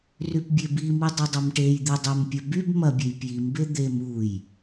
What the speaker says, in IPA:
rypbʲebimi dˤidˤɐmʈejd̪i dˤempʲɐ byb mɐbʲej pjimbe d̪em uj

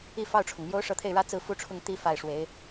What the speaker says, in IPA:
i˥˧fɑ˥˩ʊ̯ʈ͡ʂʰʊ˩ŋmjo˥ʊ̯ ʂɤ˧˥t̪ʰe˥˩ɪ̯ɻä˥ t͡sɹ̩˥˩fu˥ʈ͡ʂʰʊ˥˧ŋ t̪i˥˧ fa˥˩ɪ̯ʂwe˧˥ɪ̯

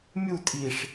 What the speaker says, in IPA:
mʲu tʼiʂ

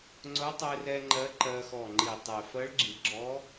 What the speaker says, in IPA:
ŋ͡ǀʊ˧˥tˤe˧rɛ˧ ŋ͡ǃɜ˧˥ǃɜ˧xɔ˧˩ ŋ͡ǃi˧˩tˤe˧˩ fɜ˧˥ɭɡ͡ǁi˨˩˦ɡ͡ǁɔ˧˥

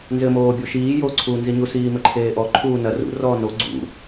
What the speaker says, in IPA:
nzɘmoːbʲo ʃiː joǀʰuːnziɲu siːmɘǃʰeːʔɔ ǃʰuːnɐ rṵ rɔːno ɡ͡ǀṵ

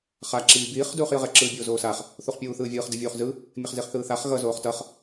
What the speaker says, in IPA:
χa ǁiːbiːχ duːχjɯʁɛ ǁɯːbʲoːzoːsaχ | θuχpʲuːθɯːvʲɯːχ dɯvʲuːχzɯ | mʲɛχziχθɯːθaχ ɣʌ zoːχtʌχ

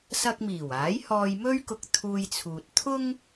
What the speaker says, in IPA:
sɐ˧k̚miː˨˩w aː˨˥jhɔː˧j mɵ˥ɥkʊ˧k̚ t̪ʰuː˧jt͡sʰuː˨t̚ t̪ʰʊ˥ŋ

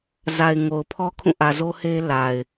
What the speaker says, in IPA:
za˨ɪ̯ ŋo˨ʊ̯pʰɔ˦ kʰũ˦˨ʔä˨zo˦he˦ la˨ɪ̯

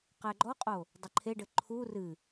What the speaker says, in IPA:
qɛɡ͡ǃɔqʼo | dˤɘǃʰeɖɘ ǃʰu rɨ

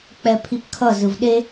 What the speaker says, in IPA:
k͡pɛpʰipkʰʌ zɯvɗe

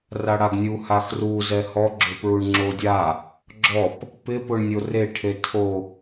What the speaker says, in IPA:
raɽaɡnʲu haxru zɛhɔ ɡ͡ǁʊpɹuɳŋ͡ǁodʲa | ɡ͡ǁɔp | pɪpʊɳnʲo reʈʰe tʰo

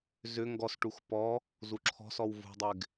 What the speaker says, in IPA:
zʏ ŋɡɔsʈux pɔ | zuǁʰɔ̤sɔw vṳdˤɪɡ

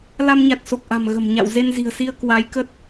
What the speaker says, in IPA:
la˧mɲa˨˩t̚so˨˩k̚ʔa̤˨˩m ɣə̤˨˩mɲa̰˧˨w ze˧nzi̤˨˩ə̯si˧ə̯ kwa˨˦jkə˦˥t̚

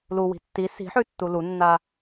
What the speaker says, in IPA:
luwi̤ tːi si̤ħʉtːu lunːa

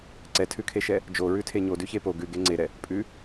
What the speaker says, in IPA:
ǀɛtʰʉkʰeʃɛ | d͡ʒoɹʉtʰe ɲodʉçe po ɡʉɡe ŋ͡ǀeɾɛ | pʼʉ

